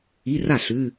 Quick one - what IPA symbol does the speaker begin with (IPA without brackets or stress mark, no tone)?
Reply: i